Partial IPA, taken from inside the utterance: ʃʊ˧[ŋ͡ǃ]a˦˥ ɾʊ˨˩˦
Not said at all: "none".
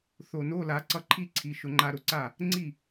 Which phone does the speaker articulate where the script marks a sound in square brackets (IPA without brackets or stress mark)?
ŋ͡ǃ